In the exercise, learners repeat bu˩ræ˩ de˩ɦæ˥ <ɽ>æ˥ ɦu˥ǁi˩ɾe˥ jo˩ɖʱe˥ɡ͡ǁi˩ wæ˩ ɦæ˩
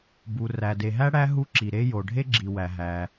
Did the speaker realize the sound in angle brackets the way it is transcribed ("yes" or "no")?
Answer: yes